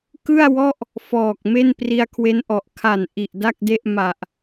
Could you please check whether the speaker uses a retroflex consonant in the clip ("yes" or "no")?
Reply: no